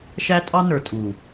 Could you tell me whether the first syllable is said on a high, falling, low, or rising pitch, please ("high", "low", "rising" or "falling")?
high